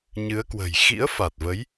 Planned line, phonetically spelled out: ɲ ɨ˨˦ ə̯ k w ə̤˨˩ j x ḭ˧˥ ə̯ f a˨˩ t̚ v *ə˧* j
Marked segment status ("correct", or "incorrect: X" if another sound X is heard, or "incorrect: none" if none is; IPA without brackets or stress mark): incorrect: ə˨˦